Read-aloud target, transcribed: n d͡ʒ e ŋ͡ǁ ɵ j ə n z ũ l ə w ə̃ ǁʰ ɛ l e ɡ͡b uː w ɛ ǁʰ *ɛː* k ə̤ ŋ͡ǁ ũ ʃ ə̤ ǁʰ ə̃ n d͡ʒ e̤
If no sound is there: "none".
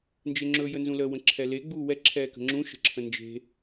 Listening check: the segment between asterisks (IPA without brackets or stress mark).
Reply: ɛː